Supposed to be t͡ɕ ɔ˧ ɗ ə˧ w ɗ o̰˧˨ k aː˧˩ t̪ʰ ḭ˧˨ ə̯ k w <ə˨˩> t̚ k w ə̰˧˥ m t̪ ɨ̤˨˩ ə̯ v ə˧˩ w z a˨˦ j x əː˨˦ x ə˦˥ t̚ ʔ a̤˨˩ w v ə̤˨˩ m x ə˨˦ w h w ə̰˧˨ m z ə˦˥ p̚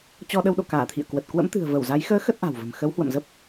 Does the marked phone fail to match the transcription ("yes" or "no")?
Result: no